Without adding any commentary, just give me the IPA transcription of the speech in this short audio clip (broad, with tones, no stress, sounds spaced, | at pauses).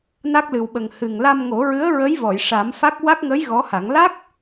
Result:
n a˦˥ k̚ l ɨ˨˩ w ɓ ə˨˩ ŋ h ɨ˨˩ ŋ l a˧ m ŋ o˨˩˦ ɹ ɨ˧˥ ə̯ ɹ ə˧˥ j v ɔ˨˩˨ j ʂ a˨˩˦ m f a˦˥ k̚ w a˦˥ k̚ ŋ ə˧˥ j ɣ ɔ˧˥ h a˨˩˦ ŋ l a˦˥ k̚